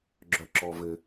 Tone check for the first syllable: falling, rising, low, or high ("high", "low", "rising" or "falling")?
low